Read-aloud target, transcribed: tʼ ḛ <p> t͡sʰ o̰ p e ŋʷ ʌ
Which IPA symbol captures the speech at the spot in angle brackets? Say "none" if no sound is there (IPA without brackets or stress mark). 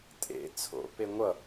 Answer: none